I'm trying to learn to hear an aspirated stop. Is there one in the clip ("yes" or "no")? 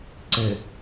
no